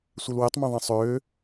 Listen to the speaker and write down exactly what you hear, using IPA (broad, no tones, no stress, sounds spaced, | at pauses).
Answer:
sʷ e l w e tˤ m ɛ̃ ðˤ ɛ̃ sˤ øː